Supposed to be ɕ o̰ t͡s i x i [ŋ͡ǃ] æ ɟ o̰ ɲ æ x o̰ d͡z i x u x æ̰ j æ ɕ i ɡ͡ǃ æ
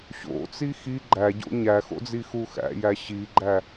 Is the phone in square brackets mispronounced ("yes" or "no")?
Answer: yes